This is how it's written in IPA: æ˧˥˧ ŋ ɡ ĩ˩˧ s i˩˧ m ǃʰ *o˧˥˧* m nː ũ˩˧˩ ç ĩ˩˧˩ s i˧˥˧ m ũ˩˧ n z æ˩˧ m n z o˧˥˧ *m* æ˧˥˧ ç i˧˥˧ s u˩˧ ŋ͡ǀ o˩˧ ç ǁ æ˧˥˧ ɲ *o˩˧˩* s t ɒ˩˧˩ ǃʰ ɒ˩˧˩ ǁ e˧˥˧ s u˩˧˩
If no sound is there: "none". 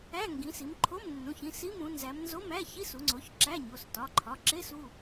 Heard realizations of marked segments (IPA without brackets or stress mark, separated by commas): o˧˥˧, m, o˩˧˩